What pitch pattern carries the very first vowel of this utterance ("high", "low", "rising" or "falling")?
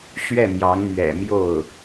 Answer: falling